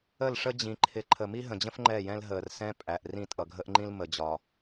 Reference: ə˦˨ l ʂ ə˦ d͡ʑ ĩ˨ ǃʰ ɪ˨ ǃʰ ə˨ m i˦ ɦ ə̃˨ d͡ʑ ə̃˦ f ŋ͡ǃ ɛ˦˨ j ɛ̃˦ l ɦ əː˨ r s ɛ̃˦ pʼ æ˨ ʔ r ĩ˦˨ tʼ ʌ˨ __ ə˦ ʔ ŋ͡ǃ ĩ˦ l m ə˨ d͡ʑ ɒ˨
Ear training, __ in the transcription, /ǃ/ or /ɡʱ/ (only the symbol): ɡʱ